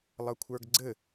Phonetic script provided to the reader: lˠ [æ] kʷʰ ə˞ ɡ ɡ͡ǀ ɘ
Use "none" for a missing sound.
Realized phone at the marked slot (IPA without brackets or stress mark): ɐ